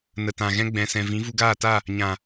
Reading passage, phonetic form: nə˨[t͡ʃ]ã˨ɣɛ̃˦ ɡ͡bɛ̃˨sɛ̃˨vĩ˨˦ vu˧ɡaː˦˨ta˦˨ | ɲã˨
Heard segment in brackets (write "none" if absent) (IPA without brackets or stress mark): t